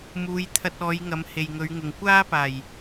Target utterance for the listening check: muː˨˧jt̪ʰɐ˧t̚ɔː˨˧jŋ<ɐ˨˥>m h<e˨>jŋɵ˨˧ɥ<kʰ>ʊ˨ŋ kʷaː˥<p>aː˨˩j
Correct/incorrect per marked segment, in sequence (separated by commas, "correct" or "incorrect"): incorrect, correct, incorrect, correct